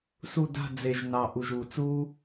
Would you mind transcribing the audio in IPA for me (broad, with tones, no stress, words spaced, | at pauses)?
su˦˨ da̤˦˨d͡ze˨˩ʒnɑ˨˩ ʔu˨˩ʒu˨˩t͡suː˦